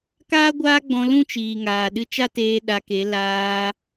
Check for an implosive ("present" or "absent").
present